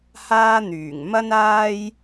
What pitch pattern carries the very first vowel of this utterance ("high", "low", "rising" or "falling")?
high